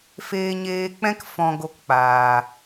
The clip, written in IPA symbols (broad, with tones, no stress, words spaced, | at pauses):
feː˧ɲeː˧k͡pɛ̃˦k fɔ̃˧ɡo˧kk͡paː˨